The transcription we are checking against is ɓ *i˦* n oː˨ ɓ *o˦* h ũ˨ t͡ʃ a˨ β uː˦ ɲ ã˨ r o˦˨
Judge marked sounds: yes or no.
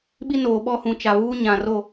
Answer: yes, no

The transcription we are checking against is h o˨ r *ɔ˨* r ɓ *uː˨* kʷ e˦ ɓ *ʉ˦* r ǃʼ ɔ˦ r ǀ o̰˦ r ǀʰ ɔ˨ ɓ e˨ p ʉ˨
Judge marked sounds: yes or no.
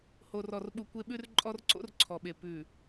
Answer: yes, no, yes

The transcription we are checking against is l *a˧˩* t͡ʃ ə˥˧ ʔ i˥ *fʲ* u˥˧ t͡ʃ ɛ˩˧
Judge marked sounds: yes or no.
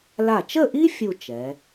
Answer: yes, yes

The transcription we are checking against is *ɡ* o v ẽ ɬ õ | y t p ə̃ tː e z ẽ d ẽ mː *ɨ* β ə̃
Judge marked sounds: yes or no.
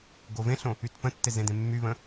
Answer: yes, no

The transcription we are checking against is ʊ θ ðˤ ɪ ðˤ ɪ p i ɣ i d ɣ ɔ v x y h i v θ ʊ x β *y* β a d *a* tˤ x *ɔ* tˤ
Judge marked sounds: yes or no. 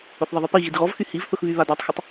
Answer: yes, yes, no

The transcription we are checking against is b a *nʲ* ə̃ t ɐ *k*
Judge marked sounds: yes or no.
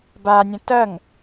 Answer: yes, no

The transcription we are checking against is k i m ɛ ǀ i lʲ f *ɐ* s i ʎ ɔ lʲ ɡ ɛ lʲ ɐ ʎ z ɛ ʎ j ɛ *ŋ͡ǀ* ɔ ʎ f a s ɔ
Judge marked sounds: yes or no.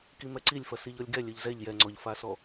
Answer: yes, yes

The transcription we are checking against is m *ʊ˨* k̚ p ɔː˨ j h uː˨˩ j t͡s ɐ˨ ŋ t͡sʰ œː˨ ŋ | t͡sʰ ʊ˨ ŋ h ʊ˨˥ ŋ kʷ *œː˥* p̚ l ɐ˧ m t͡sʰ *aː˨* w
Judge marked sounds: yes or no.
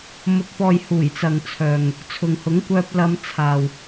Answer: yes, no, yes

